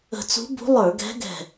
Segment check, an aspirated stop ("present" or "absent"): absent